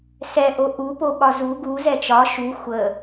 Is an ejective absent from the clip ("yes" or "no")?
yes